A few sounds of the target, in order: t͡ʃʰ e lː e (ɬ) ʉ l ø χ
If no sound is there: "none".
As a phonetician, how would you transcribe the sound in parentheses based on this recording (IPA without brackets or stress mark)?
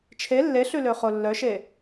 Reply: ɬ